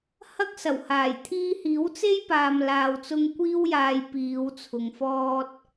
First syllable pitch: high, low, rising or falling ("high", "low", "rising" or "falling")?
high